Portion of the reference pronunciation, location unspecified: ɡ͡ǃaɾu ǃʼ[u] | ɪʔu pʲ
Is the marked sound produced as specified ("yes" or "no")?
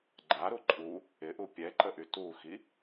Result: yes